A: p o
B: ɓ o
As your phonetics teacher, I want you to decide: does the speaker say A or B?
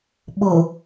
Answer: B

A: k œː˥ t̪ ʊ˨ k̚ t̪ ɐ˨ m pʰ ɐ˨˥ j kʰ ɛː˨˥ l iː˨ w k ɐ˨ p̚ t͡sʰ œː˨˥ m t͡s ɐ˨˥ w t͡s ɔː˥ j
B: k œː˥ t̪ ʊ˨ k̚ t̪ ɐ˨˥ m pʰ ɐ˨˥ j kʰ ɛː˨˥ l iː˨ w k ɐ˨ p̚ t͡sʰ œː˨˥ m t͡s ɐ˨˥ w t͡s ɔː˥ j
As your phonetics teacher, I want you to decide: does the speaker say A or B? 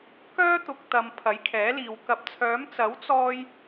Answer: A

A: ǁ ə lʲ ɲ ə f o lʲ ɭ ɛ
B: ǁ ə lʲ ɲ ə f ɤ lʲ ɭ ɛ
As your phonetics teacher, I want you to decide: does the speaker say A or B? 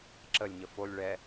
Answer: A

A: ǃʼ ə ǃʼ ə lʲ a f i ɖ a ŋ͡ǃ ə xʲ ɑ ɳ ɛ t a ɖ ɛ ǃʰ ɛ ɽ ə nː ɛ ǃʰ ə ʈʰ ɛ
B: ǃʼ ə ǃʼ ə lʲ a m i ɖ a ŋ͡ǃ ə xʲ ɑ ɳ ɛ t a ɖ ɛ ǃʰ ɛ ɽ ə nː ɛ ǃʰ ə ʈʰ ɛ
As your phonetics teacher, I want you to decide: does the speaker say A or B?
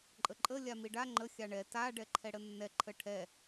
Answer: B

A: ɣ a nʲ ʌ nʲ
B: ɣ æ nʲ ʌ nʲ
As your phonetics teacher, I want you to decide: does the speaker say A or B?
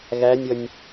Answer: B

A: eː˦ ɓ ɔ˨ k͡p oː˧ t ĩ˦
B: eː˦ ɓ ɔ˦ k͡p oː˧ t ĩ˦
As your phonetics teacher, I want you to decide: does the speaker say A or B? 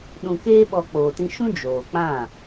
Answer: B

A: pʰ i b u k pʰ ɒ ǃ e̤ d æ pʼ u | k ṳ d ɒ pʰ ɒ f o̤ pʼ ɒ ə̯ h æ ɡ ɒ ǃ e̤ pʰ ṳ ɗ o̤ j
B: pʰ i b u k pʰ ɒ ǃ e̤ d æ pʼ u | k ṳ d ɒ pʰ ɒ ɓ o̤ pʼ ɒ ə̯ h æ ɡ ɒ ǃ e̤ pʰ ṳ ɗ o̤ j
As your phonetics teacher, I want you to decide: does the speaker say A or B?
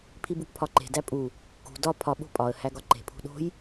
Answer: B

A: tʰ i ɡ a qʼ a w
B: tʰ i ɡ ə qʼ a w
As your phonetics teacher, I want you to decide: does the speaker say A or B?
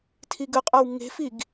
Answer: B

